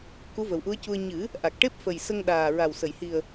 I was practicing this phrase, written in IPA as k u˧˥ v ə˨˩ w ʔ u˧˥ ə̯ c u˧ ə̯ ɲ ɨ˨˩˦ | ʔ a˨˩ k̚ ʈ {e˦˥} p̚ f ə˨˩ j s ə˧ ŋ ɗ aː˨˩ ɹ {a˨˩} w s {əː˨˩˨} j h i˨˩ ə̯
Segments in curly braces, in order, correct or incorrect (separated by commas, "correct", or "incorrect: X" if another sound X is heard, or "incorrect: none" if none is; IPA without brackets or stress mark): correct, correct, incorrect: ə˨˩˨